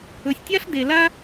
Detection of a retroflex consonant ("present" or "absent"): absent